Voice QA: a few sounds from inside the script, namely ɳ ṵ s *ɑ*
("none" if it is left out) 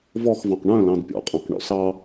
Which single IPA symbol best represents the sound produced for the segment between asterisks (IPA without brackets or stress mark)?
ɑ